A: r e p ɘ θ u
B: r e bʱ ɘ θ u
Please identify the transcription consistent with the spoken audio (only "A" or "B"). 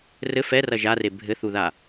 B